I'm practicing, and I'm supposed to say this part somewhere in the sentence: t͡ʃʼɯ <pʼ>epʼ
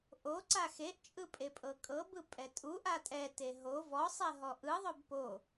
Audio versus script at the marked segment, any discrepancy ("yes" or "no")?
no